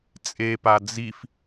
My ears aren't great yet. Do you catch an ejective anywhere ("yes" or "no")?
yes